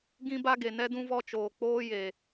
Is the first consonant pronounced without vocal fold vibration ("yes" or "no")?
no